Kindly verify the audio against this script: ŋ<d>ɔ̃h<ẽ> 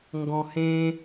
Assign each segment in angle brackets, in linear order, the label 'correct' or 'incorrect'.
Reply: incorrect, correct

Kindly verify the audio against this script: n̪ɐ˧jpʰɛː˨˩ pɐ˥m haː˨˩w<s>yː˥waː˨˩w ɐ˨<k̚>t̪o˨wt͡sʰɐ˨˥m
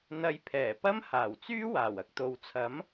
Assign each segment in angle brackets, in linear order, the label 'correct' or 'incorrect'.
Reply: incorrect, correct

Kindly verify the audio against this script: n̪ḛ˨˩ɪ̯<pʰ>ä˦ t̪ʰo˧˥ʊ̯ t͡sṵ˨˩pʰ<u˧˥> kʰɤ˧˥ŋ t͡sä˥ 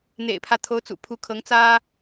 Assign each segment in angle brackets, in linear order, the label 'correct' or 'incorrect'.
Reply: correct, correct

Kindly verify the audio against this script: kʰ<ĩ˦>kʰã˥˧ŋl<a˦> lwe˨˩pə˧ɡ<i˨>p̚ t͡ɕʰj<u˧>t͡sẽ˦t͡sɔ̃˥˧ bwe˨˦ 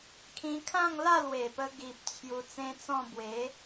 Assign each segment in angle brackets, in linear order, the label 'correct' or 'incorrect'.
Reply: incorrect, incorrect, correct, correct

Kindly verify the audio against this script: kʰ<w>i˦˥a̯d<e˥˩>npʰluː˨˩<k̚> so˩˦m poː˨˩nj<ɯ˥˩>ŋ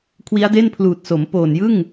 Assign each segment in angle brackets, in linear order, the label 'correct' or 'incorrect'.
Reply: correct, correct, incorrect, correct

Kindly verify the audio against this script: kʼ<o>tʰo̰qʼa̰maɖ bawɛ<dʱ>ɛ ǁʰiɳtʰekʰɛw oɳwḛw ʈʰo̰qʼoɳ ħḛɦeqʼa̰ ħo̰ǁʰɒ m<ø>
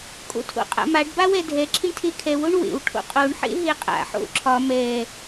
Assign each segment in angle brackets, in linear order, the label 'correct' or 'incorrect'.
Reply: incorrect, correct, incorrect

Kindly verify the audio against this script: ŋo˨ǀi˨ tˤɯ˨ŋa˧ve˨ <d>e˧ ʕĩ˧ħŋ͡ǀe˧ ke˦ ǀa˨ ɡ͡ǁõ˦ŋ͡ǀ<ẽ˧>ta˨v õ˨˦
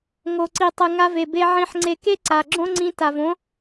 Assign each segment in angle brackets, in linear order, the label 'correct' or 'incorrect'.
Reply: incorrect, incorrect

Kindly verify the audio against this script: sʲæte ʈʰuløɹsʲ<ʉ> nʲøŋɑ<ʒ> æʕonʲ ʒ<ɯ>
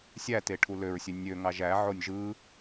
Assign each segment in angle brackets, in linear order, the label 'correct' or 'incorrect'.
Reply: incorrect, correct, correct

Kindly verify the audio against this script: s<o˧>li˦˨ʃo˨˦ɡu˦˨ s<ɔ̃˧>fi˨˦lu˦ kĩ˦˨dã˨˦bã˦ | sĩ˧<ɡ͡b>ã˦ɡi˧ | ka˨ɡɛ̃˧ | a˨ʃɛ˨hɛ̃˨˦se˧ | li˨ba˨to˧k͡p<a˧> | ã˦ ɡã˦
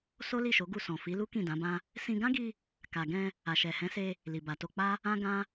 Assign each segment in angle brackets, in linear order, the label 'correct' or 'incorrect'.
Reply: incorrect, incorrect, incorrect, incorrect

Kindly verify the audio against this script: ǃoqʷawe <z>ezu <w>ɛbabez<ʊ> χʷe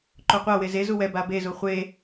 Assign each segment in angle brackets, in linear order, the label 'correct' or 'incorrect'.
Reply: correct, correct, incorrect

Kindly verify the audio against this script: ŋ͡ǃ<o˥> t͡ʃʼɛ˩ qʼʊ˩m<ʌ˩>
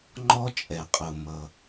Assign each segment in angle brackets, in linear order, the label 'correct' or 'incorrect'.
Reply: incorrect, correct

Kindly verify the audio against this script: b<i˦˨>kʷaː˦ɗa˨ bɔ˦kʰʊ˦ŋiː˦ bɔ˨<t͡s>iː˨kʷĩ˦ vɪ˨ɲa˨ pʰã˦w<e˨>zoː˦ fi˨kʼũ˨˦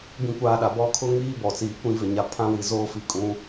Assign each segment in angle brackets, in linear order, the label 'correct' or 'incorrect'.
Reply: incorrect, correct, incorrect

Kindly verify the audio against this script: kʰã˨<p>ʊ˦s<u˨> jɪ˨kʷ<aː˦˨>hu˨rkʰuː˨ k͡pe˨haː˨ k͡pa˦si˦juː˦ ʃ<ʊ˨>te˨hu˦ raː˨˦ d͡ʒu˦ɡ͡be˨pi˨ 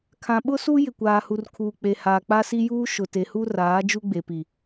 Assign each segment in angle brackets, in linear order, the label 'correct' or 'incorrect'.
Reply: incorrect, incorrect, incorrect, correct

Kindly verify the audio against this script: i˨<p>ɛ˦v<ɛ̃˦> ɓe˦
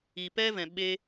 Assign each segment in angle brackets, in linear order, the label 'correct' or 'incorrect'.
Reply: correct, incorrect

